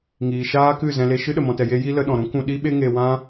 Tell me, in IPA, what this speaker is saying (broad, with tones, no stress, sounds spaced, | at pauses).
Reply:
ŋ iː˨ ʃ aː˦ k ɨ˦˨ z ɛ̃˧ l e˧ ʃ ɨ˦ ɗ ə˧ m ɔ̃˧ t ɛ˧ j e˦ j i˦ l ə˨˦ ɗ ɔ̃˨ ɾ ũ˦ k ũ˧ ɗ i˦ ɓ e˦ ŋ e˧ w ã˦